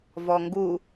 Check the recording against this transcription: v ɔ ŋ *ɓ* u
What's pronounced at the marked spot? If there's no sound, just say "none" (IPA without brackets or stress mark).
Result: ɡ